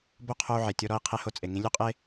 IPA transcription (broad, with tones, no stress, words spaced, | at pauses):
bo˥ qʰo˧u̯ʕe˩ tʲo˧ɾɔ˧i̯ qʰe˧ho˧t͡sʼe˩ ŋĩ˧lʲu˥qʼe˥